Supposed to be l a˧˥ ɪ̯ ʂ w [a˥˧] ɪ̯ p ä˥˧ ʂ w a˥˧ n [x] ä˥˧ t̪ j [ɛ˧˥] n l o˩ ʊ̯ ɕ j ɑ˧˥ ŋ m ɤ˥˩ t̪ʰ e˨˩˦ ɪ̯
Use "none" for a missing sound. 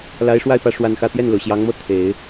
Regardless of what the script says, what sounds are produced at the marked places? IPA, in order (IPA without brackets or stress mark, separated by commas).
a˥˧, x, ɛ˥˩